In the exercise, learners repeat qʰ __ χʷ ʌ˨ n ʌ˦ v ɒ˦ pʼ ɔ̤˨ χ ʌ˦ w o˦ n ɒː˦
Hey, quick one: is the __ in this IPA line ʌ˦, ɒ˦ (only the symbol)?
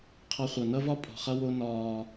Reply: ʌ˦